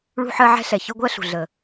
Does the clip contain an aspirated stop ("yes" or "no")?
no